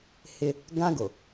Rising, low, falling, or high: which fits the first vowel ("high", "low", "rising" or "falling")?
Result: high